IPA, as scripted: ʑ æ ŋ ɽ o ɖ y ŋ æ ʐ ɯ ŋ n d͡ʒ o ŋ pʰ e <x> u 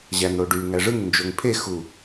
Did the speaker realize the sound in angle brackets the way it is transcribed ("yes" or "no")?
yes